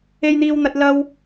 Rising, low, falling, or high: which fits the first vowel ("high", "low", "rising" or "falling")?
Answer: high